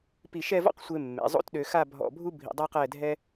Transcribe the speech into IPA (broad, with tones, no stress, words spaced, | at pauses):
pi˧˩ʃɛ˥˧vɔ̰˥qsʷe˧ mːḛ˩˧zˤo̰˥tɗø˧ xa˥˧ bʱɔ̰˧˩bʱu˥ bʱḭ˧dˤa˥qɛ˥˧ dʱɛ˥